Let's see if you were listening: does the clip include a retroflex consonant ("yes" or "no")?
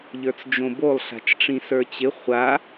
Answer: yes